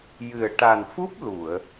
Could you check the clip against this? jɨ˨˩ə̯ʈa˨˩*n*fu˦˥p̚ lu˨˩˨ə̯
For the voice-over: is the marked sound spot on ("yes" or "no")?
yes